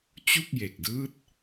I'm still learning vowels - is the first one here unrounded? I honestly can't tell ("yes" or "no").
no